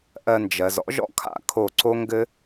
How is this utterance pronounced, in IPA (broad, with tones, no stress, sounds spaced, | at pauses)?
ʔ ɜ˧ n d͡ʒ ɜ˨ z ɔ̰˦ ʒ ɔ̰˦ kʰ a̰˦ kʰ o˦˨ ǀ o˦ ŋ ɡ ɘ˦